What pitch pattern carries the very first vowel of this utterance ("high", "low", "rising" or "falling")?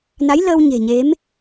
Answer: rising